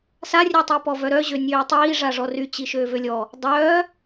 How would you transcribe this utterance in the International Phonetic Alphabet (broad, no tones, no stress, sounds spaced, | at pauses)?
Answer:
s a rʲ œ tˤ i p ɔ v œ ɾ œ ʑ ø nʲ øː tˤ iː ʐ a ʐ ɔ r y t͡ɕ i ʃ øː v ø lʲ ɔ | dˤ œː